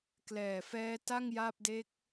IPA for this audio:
klɛː˨˩fɛː˦˥ta˥˩ŋ ja˥˩p̚ de˦˥k̚

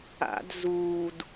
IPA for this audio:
a̰d zuːd

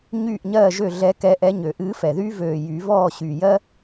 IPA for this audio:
ɲyː˥˨ʔɲɜː˥˨ʒø˥˨ ɮɛ˧˥kɛ˧˥ʔɛ˧˥ ɲø˨˩˦ʔɨː˧˥fɛ˨˩ðyː˥ vøː˨˩jy˨˩˦ vɔː˥˨ɕy˨˩jɜ˥

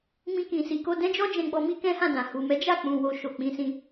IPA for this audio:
mĩ˦kĩ˧si˧ko˦ dɛ̃˦d͡ʒɔ˦d͡ʒɛ̃˧ɡ͡bɔ˧ mi˦kɛ̃˦hã˦˨dã˨ hu˨mɛ˨˦ d͡ʒa˦˨k͡pũ˨ wo˧ʃo˨k͡pĩ˨˦sĩ˧

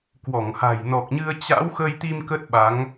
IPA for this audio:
kwɔ˧˩ŋha̤˨˩j nɔ˨˩k̚ɲɨ˧ə̯ t͡ɕa̰˧˥w xə˧jt̪i˧m kə˦˥t̚ ɓa˨˦ŋ

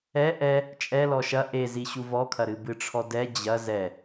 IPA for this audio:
ɛ ʔɛ | t͡ʃʼɛlɔ ʃɐ ʔeziɕu vɔkʰɐɾɨ bɨʈ͡ʂʰɔdɛ d͡ʑɐ zɛ

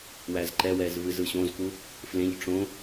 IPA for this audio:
wæzǃɛwɛz vɨzɯɕõzku | flẽʎ ʈ͡ʂõ

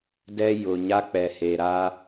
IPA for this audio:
dɛ˦ jʊ˨ ɲa˦k͡pɛ˨he˨ɾaː˦

